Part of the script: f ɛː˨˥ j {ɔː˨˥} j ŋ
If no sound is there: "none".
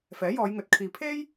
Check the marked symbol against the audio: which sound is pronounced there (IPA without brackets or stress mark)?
ɔː˨˧